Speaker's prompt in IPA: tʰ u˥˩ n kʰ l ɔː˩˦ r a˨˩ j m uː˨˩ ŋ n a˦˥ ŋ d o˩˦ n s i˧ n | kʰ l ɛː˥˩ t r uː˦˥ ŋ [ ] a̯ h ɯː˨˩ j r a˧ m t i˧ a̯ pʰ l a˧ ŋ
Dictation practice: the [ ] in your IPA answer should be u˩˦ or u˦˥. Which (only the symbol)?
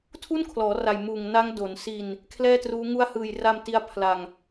u˦˥